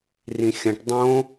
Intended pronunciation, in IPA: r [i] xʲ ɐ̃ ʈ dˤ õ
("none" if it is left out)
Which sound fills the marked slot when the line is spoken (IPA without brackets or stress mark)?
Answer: ĩ